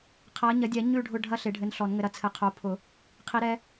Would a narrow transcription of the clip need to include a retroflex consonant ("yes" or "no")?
yes